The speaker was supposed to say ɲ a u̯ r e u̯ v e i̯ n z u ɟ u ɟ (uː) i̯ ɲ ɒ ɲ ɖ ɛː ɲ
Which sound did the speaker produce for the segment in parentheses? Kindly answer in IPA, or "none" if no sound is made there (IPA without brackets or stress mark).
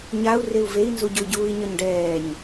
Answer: uː